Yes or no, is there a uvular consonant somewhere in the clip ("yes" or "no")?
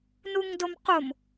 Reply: yes